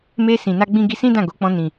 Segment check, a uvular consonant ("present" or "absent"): absent